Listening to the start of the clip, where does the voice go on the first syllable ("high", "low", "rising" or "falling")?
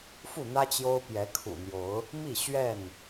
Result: falling